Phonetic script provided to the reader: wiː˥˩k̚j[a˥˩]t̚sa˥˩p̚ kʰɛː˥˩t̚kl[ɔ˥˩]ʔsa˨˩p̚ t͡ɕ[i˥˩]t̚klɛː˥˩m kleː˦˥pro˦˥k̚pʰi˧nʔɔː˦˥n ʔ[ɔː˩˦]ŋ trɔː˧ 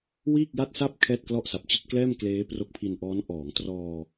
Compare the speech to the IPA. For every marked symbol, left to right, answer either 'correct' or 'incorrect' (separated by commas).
correct, correct, correct, correct